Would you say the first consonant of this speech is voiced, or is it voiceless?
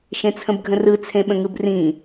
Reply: voiceless